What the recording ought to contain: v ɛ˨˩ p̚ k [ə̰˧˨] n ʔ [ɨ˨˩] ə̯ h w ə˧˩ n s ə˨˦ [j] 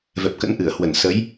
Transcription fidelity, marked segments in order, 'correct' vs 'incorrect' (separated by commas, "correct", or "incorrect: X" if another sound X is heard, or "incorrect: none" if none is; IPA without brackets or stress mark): incorrect: ə̰˧˥, incorrect: ɨ˧˩, correct